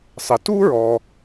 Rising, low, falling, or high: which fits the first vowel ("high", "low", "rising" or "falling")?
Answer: low